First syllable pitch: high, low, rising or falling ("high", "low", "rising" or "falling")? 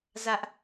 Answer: high